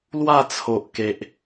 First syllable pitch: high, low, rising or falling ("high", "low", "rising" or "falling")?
falling